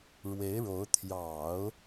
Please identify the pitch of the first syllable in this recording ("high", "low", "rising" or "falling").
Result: rising